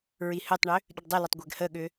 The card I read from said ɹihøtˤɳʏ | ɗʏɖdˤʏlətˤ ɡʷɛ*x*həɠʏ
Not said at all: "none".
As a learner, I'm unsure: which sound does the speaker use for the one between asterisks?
ɡ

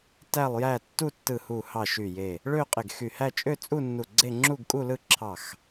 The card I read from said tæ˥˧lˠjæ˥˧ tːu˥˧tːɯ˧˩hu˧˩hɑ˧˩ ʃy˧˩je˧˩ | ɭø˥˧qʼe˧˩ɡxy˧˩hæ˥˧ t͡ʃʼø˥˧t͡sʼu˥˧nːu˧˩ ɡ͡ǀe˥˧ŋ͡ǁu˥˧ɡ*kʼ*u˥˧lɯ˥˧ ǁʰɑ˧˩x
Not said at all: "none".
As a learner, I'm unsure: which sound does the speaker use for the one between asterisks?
kʼ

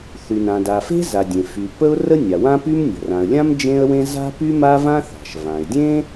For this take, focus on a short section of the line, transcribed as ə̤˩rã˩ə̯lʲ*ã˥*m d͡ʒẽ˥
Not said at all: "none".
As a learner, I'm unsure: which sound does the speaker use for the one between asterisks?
ã˥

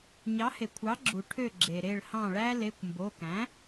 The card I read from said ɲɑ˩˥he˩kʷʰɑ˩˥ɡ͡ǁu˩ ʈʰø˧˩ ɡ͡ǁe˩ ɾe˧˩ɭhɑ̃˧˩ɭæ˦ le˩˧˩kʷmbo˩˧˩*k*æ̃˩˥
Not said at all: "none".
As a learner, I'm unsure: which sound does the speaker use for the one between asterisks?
k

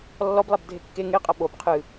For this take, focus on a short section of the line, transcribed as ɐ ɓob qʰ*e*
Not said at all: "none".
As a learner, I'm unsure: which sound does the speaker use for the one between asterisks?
ɨ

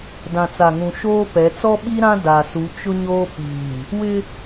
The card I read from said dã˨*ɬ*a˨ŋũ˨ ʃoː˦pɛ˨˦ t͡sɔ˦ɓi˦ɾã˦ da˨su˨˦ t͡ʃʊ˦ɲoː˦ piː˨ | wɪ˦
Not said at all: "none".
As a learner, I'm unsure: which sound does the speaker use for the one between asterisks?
t͡s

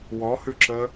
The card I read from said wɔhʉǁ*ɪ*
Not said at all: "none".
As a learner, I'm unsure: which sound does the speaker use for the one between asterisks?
ə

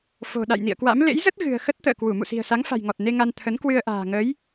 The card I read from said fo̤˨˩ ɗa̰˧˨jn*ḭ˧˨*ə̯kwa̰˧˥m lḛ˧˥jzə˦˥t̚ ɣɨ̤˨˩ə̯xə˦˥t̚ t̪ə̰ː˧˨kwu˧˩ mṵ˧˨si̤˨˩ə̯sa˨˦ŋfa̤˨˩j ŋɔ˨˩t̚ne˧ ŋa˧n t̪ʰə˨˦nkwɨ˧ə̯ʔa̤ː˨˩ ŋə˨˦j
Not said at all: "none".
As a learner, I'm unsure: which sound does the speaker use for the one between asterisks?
ḭ˧˨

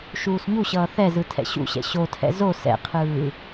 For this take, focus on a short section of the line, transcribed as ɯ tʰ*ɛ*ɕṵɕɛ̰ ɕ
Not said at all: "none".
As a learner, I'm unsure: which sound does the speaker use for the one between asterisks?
ɛ̰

